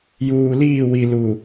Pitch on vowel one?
low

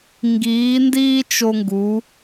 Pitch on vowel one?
rising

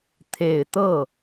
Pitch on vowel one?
low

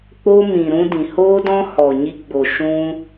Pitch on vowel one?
high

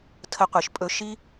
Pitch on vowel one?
high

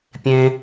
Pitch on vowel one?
high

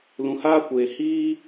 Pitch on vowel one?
low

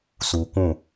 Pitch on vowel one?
low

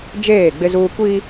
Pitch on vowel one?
falling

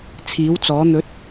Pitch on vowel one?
rising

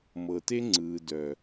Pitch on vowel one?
low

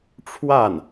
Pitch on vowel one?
falling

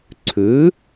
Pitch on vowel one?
rising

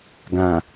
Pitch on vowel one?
low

